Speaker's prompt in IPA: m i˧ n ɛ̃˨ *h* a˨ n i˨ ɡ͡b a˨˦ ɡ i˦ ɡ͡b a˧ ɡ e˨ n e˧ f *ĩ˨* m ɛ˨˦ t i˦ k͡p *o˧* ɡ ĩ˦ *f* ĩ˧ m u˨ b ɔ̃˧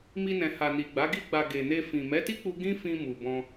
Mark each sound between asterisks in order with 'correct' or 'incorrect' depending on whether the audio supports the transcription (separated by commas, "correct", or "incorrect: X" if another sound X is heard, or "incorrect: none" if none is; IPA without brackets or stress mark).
correct, correct, incorrect: u˧, correct